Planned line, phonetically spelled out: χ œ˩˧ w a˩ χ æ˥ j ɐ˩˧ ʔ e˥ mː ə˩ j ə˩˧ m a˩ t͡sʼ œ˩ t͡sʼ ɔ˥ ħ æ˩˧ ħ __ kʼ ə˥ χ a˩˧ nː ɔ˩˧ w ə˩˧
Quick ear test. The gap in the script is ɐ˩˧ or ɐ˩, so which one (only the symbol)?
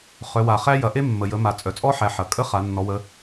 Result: ɐ˩